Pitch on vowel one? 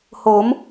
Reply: rising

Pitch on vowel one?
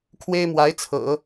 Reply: high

